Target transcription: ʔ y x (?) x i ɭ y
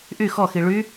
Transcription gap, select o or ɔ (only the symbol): ɔ